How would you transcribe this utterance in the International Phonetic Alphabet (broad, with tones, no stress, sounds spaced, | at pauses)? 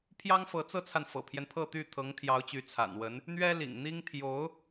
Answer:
pʰ j ɑ˥ ŋ f ɤ˧˥ t͡s ɤ˥ t͡sʰ a˨ n f ɤ̰˨˩ pʰ j ɛ˦ n pʰ ɤ˥˧ t̪ y˥˩ t̪ʰ ɤ˧˥ ŋ t̪ʰ j ɑ˧˥ ʊ̯ t͡ɕ y˧˥ t͡sʰ a̰˨˩ n w ə˧˥ n | n̪ ɥ ɛ˥ l ḭ˨˩ ŋ n̪ i˥ ŋ t̪ʰ j o˧˥ ʊ̯